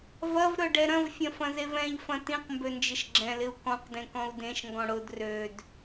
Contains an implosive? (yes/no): no